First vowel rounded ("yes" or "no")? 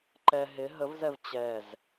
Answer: no